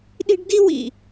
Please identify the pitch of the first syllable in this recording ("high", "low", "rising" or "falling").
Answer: high